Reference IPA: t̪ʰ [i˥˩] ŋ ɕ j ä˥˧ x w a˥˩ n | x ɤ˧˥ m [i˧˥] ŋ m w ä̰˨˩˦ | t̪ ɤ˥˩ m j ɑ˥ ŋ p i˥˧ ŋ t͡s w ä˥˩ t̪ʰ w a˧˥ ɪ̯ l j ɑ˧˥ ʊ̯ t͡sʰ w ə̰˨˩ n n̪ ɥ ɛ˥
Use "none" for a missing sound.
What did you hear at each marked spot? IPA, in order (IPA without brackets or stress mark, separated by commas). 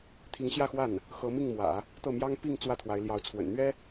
i˧˥, i˥˩